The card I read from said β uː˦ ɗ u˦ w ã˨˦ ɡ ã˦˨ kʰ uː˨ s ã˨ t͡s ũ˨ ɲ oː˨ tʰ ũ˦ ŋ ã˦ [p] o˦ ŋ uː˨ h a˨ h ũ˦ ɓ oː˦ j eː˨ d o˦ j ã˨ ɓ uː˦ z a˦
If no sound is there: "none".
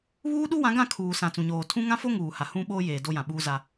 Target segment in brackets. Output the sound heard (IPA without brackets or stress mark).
f